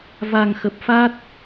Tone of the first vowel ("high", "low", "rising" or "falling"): low